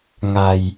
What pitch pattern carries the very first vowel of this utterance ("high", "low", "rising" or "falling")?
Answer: low